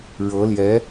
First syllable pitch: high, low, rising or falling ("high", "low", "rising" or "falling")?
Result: rising